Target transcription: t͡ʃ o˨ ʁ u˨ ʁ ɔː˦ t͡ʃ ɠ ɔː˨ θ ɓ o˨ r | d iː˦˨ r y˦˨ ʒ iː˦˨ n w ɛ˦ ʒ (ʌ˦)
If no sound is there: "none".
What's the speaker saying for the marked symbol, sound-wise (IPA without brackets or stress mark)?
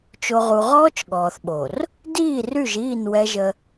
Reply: ə˦